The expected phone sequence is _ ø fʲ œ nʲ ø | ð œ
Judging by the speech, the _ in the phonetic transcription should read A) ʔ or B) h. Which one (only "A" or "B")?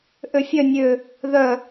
A